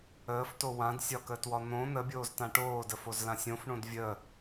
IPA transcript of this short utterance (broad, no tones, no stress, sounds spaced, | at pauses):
əː f t o w ã d sʲ ɒ k əː t w ɒ n̪ õ n̪ ə bʲ oː z t ã ʈ oː d ə f o z l ã sʲ õ f ɳ õ d vʲ əː